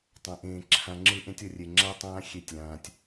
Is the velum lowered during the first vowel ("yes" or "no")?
yes